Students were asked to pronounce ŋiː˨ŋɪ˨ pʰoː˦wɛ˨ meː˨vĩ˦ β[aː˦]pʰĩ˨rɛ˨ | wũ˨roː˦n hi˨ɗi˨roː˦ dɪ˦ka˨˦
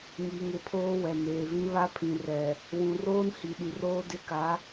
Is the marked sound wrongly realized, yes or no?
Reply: yes